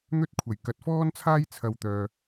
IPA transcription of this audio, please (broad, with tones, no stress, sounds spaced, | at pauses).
n̪ ɵ˥ t̚ kʷʰ ɐ˨˩ j k ɐ˨ t̚ f ɔː˥ n t͡sʰ aː˥ j t͡sʰ ɐ˧ w t̪ œː˨